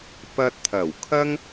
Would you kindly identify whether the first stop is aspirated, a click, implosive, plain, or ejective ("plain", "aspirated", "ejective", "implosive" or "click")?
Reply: plain